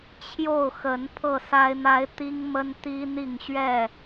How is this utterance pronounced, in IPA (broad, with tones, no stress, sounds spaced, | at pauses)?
t͡ɕʰ j o˥˨ ʊ̯ x ə˨˦ n pʰ ɤ˥˨ s a˦ ɪ̯ n̪ a˦ ɪ̯ t̪ i˦ ŋ m ə˦ n t̪ i˦ n̪ i˥˨ ŋ ɕ ɥ ɛ˥˨